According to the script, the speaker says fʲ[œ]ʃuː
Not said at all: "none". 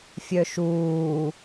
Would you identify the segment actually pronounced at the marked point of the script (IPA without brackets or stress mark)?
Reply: œ